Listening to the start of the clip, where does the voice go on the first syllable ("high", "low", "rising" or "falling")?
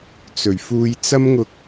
low